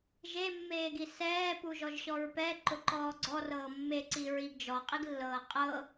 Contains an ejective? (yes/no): yes